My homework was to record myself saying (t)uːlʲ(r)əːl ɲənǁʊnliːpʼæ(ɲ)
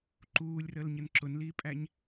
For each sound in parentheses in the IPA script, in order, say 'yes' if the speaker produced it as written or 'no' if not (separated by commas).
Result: no, yes, yes